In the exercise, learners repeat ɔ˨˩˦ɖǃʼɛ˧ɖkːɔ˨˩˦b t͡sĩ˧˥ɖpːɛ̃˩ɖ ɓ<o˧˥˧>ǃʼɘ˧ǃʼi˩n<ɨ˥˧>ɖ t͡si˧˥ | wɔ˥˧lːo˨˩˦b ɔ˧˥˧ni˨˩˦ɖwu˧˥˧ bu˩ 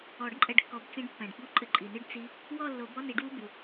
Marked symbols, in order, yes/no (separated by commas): no, yes